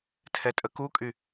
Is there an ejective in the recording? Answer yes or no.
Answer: yes